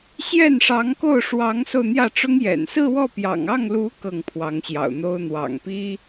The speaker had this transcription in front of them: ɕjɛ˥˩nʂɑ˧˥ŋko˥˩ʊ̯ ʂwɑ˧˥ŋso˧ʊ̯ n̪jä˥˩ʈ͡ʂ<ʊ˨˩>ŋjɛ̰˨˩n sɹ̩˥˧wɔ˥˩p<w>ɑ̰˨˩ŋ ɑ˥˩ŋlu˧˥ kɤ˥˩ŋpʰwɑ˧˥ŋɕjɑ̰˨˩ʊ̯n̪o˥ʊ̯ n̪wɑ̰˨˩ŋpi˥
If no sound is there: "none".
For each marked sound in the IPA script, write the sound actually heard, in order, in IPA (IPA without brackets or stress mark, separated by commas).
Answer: ʊ˥, j